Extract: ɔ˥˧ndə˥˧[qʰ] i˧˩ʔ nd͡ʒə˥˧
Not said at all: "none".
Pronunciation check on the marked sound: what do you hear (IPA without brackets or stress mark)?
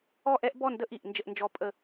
ʔ